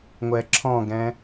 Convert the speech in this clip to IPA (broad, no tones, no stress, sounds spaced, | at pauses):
ŋʷ ɛ ǁʰ ɔ̃ ɡ ɛ̃